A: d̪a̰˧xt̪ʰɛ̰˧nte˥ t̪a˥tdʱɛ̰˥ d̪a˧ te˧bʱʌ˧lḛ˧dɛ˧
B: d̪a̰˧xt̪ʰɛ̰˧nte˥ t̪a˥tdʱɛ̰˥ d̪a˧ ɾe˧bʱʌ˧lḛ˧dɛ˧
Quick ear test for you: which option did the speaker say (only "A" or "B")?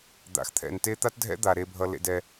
B